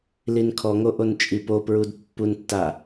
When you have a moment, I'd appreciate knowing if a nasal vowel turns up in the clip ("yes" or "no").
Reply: no